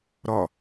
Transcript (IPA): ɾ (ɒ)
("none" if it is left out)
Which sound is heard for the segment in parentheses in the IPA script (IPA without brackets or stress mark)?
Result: ɒ